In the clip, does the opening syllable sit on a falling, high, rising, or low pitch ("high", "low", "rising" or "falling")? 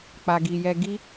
low